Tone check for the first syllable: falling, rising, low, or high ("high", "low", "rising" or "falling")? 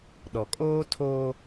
low